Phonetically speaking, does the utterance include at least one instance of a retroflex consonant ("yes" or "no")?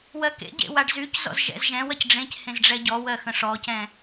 yes